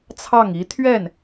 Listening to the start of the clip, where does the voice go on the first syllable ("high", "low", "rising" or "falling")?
falling